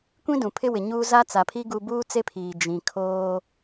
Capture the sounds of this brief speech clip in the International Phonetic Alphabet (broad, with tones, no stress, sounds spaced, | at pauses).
kʷ ĩ˦ d ũ˨ pʰ ɪ˦ w ɪ˨ ɲ uː˦ z a˦ t͡s a˨ pʰ i˦ ɡ u˦ b uː˦ t͡s e˦ pʰ iː˨ d͡ʒ ĩ˨ kʰ oː˦